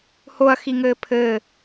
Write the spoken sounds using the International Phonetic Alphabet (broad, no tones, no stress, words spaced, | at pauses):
hoɐ̯xiŋɘː pʰɘː